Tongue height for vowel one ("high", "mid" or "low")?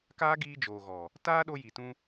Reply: low